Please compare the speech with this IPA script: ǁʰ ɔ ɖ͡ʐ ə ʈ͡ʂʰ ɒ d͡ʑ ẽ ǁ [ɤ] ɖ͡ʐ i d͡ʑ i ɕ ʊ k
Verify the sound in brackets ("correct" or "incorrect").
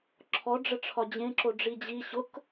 incorrect